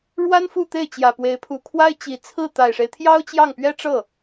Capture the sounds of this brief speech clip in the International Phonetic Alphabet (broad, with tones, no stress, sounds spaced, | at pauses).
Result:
ɻ w a˥ n f u˥˧ t̪ e˥˩ ɪ̯ t͡ɕ j ä˨˩ p w e˧˥ ɪ̯ pʰ u˧˥ kʰ w a˥ ɪ̯ t͡ɕ i˧˥ t͡sʰ ɹ̩˥˩ t̪ a˨˩ ɪ̯ ʂ e˦ ɪ̯ t̪ʰ j ɑ˥ ʊ̯ t͡ɕ j ɑ˥˩ ŋ p ɥ ɛ˥ ʈ͡ʂ ɤ˥˩